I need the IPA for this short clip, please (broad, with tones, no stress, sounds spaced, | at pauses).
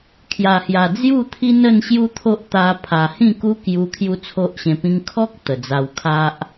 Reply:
kʰ j a˨˩ h j a˨˩ d͡z j u˥˧ t̪ʰ i˦ n ə˥˧ n ɕ j u˦ t̪ʰ o˦ ʔ t̪ a˧ pʰ a˨˩ h ĩ˥˧ k u˦ k j u˧ kʰ j u˦ t͡sʰ o˦ ʔ ɕ ẽ˧ p ĩ˦ ŋ kʰ ɔ˦ k̚ t̪ ə˨˩ d͡z a˧ w kʰ a˦ ʔ